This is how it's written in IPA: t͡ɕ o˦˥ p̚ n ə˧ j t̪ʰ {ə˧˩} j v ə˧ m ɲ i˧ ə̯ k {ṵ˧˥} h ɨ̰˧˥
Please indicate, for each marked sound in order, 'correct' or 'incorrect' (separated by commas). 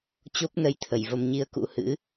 correct, correct